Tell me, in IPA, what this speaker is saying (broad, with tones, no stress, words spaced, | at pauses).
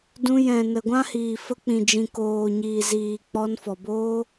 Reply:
dũ˧ jɛ̃˨ nə˨ɡʷã˦hiː˨ fə˧k͡pĩ˨d͡ʒĩ˨ koː˨ɲiː˨ziː˨ k͡pɔ˧nfɔ˨boː˦